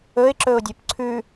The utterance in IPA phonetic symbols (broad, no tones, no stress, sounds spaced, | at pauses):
ɵ ɪ̯ ǁ ɵ ʊ̯ dʲ ɵ p ǀʰ ʉ